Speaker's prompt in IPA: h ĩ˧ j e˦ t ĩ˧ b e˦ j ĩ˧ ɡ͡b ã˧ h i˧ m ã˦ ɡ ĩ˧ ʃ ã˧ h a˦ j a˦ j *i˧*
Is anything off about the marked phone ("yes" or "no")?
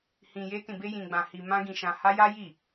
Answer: yes